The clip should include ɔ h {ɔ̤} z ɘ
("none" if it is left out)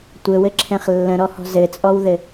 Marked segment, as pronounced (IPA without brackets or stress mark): ɔ̤